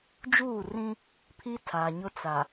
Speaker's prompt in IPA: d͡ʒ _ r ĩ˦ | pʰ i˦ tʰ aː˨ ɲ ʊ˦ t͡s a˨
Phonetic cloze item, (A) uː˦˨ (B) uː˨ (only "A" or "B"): A